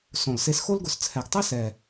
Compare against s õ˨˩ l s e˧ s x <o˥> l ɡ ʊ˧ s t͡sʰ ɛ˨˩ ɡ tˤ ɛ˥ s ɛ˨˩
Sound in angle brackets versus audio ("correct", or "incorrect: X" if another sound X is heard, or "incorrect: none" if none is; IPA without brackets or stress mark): correct